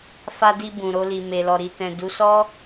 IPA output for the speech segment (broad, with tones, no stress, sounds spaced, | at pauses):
f a˧ d i˧ b ũ˨ ɾ o˧ l i˨ m e˨ l ɔ˨ ɾ i˨ t ɛ̃˨ d u˨˦ s ɔ˦